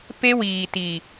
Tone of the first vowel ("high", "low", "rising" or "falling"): high